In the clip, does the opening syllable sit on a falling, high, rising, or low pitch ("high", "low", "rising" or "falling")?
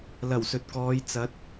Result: low